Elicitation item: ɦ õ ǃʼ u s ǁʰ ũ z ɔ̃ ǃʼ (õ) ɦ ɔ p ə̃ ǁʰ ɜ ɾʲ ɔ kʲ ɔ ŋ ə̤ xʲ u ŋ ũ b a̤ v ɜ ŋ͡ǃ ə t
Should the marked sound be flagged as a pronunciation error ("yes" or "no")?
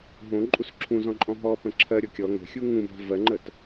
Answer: yes